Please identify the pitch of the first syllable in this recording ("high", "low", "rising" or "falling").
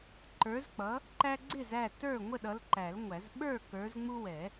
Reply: rising